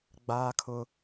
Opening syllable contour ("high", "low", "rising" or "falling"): high